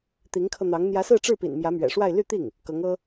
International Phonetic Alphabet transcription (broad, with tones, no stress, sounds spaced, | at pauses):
t̪ i˧˥ ŋ kʰ ɤ˧ n̪ ɑ˧˥ ŋ n̪ j ä˧˥ s ɹ̩˥˧ ʈ͡ʂ ɻ̩˥˩ p ḭ˨˩ n m j ä˧˥ m ɥ ɛ̰˨˩ ʂ w a˥˧ ɪ̯ l y˥˧ t̪ i˥˩ ŋ | k ɤ˧˥ ŋ ɤ˥